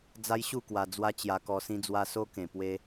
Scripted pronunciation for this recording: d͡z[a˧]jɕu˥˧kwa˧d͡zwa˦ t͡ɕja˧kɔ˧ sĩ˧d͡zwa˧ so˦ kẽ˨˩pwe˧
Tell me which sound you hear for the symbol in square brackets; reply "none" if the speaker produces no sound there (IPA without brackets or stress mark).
a˦